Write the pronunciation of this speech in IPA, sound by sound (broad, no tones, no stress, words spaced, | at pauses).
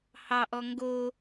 hɑʔɔ ŋɡo